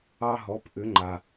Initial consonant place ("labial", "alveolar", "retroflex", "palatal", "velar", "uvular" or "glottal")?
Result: glottal